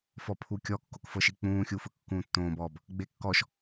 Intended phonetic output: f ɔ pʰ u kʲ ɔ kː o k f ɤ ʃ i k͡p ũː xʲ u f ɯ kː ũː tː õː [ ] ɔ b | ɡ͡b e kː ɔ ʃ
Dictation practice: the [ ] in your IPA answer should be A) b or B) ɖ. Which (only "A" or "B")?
A